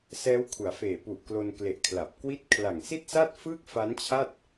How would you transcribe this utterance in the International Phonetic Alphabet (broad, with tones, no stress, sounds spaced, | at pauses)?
s ɛː˦˥ w kʰ u˩˦ a̯ f eː˨˩ p u˨˩ ʔ k l o˧ n k l e˨˩ ʔ kʰ l a˨˩ p̚ k w i˥˩ t̚ kʰ l a˨˩ ŋ s i˥˩ t̚ s a˥˩ t̚ f ɯː˥˩ k̚ f a˦˥ n t͡ɕʰ a˥˩ t̚